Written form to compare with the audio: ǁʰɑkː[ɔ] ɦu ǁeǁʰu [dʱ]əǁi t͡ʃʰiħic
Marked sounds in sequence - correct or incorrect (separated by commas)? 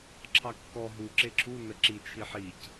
correct, incorrect